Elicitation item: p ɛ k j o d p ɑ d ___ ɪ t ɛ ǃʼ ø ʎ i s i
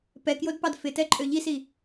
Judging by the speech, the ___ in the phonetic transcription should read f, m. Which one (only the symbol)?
f